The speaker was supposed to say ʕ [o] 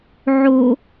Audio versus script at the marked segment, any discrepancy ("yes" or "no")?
no